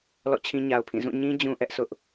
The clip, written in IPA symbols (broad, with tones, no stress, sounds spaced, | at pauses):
l ɔ̰˦˨ t͡ɕʰ ĩ˦ ɲ a˨ ʊ̯ pʰ ĩ˦˨ z ũ˦˨ ɲ ĩ˦ d͡ʑ ũ˦ ʔ ɛ˦ ʔ s ʊ˦ ʔ